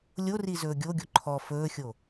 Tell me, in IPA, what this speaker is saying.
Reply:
lʲori zɵːɡʲoɡʲo ǃʰɔ fɵːxʲo

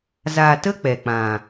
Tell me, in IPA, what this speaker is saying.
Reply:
za˨tə˧ k͡pɛ˨k͡pã˨

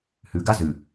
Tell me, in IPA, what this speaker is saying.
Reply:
hʉɡa zʉ

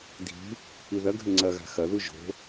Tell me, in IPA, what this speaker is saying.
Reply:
dʱi̤ | iðɐɡʱɘ ŋ͡ǀɐɣa̤ xɐðu ʒo̤

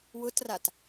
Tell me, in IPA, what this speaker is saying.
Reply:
wʊtrat

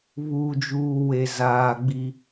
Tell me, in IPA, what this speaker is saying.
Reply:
βuː˨d͡ʒuː˨ we˨ zaː˨ɡ͡bi˦

